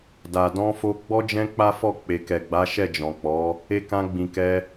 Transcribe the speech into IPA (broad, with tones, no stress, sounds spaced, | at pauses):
d a˨ d ɔ̃˧ f o˧ ɡ͡b ɔ˦ d͡ʒ ɛ̃˦ k͡p a˦ f ɔ˦˨ k͡p e˨ k ɛ˨ ɡ͡b a˨˦ ʃ ɛ˦˨ d͡ʒ ɔ̃˨ k͡p ɔ˨˦ | e˧ k ã˧ ɡ͡b ĩ˨ k ɛ˧